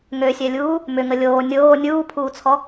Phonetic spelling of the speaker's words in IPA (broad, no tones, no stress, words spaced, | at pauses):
ŋøsʲɛlʲuː | mʏŋə lʲoː nʲoː nʲuːpʰuːt͡sʰɔ